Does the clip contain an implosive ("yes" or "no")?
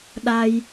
yes